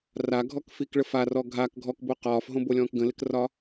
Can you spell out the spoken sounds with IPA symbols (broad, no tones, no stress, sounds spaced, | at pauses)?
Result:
r a ɡʱ ɔ k f i k ɭ ə f a r ɔ ɡʱ a k ɡʱ ɔ k b o q ɒː f ɦ õ b o lʲ ɔ̃ː k ɡ ə̃ l ɪ k r ɒ